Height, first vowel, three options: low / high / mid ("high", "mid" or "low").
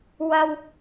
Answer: low